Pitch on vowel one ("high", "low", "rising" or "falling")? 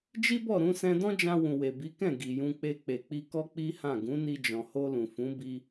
high